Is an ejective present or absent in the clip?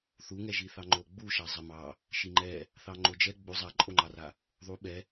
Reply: present